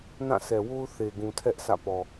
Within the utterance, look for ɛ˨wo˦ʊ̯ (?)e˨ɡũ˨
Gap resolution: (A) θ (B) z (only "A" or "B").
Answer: A